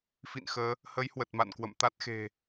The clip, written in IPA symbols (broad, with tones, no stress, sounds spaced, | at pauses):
f ḭ˧˨ n x əː˨˦ | h ə˨˦ j h w ə˨˩ t̚ m a̰˧˨ n k w ə̰˧˨ m t̪ a˦˥ t̚ x e̤˨˩